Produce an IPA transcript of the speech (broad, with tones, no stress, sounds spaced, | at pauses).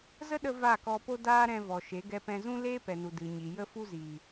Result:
z ə˦ ɗ ə˧ v a˦˨ k ɔ˧ p o˦ d aː˦ ɾ ɛ̃˧ v ɔ˨ ʃ e˨˦ ɡ ɛ˧ p ɛ̃˧ z ũ˦ l eː˦ p ɛ˨ n u˨ d ɨ˨ ɲ i˨ j ə˦ f u˦ z iː˨